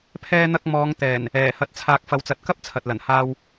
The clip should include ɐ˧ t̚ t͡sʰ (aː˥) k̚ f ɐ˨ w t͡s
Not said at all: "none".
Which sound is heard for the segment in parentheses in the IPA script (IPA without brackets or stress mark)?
aː˨